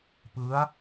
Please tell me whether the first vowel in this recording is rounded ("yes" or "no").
no